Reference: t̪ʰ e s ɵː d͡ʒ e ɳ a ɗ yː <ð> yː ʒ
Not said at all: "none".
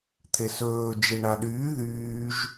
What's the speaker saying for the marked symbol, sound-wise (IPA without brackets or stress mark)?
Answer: ð